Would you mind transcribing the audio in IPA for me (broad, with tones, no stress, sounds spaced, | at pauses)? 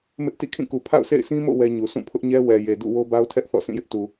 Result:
m ɪ˦ ʔ t ḭ˦˨ kʰ ĩ˦˨ k u˨ pʰ a̰˦˨ ʊ̯ s ḛ˦˨ ɪ̯ sʰ ĩ˦ m o̰˦˨ w ɛ˦ ɲ u˨ sʰ ũ˦˨ pʰ ʊ˦ ʔ ɲ ɛ˦ w ɛ˨ j e˨ d ṵ˦˨ w o˦ b a˦ ʊ̯ tʰ ɛ˦ ʔ θ ɔ̰˦˨ s ĩ˦˨ j ɪ˦ ʔ t u˨